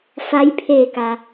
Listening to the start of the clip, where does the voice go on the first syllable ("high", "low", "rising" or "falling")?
rising